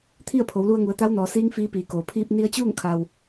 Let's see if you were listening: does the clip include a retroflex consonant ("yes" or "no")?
no